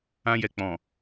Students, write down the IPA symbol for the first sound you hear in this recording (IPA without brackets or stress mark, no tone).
ã